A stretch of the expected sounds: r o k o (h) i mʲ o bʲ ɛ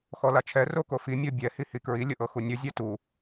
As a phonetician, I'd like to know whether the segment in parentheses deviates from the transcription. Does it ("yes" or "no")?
yes